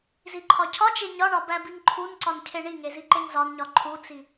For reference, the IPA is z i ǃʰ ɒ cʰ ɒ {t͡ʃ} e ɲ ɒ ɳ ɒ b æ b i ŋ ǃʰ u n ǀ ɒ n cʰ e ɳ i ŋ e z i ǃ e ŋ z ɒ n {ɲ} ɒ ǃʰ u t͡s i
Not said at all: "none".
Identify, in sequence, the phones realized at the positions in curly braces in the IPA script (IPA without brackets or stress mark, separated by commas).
t͡ʃ, ɲ